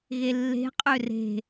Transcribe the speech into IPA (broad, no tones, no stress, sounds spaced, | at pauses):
ɣ e lː e̤ qʼ ø r e̤